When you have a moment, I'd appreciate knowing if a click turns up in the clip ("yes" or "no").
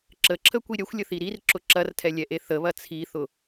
yes